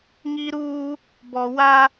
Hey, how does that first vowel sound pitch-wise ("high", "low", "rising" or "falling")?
high